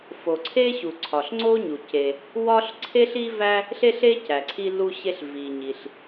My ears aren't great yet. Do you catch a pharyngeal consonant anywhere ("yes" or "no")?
no